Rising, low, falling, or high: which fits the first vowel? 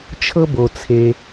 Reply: high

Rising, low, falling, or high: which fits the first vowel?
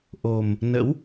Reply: low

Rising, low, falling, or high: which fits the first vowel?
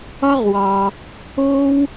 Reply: high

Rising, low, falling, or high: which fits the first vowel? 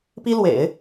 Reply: high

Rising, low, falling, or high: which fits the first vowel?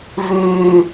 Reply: low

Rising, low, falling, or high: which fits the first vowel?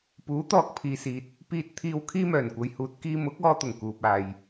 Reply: rising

